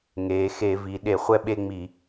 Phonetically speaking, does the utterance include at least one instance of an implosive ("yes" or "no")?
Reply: yes